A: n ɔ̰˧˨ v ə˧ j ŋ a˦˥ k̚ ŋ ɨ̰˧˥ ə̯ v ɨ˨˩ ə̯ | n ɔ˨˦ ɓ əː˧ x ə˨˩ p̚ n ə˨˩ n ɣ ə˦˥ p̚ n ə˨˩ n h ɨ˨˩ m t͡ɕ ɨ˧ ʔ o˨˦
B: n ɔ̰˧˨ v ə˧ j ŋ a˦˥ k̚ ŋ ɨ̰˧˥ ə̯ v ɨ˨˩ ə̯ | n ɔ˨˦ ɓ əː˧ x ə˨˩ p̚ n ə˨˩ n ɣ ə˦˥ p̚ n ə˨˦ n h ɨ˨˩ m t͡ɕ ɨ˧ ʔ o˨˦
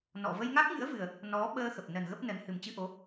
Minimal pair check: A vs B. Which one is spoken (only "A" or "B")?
B